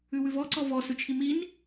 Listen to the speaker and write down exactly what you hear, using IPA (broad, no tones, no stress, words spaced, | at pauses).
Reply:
ʉwʉvɔǀɔ vɔsʉt͡ʃʰi min